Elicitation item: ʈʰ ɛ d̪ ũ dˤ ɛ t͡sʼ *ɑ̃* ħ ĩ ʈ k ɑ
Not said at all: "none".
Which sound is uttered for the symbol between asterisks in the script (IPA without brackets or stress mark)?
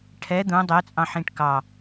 ɑ̃